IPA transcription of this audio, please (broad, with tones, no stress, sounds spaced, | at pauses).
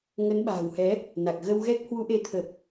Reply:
ŋ ə˨˦ n ɓ a̤ː˨˩ w h ɛ˨˦ | n a˨˩ k̚ ɣ ə˧ w ɣ ɛ˦˥ k̚ h w u˨˦ ʔ e˨˦ t̪ʰ ə˨˩ p̚